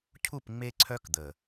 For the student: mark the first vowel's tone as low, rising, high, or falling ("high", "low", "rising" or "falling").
falling